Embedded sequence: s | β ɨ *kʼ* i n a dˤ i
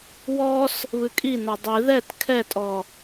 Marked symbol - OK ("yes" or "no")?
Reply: yes